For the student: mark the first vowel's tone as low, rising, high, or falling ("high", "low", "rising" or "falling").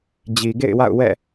low